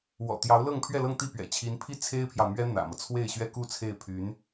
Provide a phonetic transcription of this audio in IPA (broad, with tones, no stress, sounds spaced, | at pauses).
w ɔ̰˨˩ t̪ j ɑ˧˥ ʊ̯ l ɤ˥˧ ŋ pʰ ɥ ɛ˥˧ l ɤ˥˧ ŋ t̪ i˥˩ p ɥ ɛ̰˨˩ t͡ɕʰ i˧˥ n pʰ i˥ t͡sʰ e˥ ɪ̯ pʰ j ɑ˨ ʊ̯ m ɥ ɛ˥ n̪ ä̰˨˩ m ɤ˦ t͡sʰ w e˥˩ ɪ̯ ɕ ɥ ɛ˥ k u˥˧ t͡sʰ e˥˩ ɪ̯ pʰ y˧˥ n